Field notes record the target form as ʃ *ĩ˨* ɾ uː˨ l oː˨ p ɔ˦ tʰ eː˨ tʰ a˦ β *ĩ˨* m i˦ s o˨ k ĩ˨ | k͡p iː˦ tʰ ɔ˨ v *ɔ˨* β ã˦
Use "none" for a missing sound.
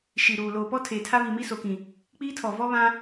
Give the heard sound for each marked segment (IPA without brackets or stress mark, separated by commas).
i˨, i˨, ɔ˦